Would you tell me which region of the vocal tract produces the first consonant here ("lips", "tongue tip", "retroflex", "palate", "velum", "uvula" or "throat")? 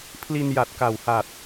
lips